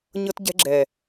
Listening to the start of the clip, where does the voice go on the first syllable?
high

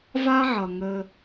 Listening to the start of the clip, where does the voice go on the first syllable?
high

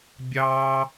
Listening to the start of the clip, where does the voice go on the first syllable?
low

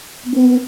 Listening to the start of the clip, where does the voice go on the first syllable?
high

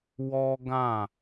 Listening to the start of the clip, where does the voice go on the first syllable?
high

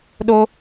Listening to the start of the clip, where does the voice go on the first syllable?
high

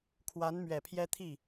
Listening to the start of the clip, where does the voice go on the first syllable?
rising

